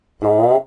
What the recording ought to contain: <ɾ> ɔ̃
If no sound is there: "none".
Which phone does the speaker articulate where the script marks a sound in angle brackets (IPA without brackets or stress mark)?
ɾ